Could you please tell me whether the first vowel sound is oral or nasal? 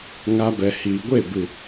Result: oral